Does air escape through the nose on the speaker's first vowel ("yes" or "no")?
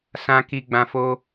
yes